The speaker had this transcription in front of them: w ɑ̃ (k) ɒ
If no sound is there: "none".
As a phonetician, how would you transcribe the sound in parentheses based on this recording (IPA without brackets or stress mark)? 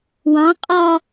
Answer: qʼ